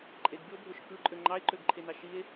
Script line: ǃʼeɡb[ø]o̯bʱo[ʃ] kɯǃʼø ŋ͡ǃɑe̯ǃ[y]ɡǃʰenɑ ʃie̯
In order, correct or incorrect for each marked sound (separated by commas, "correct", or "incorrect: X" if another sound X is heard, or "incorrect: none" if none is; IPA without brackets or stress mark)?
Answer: incorrect: y, correct, incorrect: ø